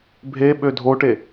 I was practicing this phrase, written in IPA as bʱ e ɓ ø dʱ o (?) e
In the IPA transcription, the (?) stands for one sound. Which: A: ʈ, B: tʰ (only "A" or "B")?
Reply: A